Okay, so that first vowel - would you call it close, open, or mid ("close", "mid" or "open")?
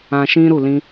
open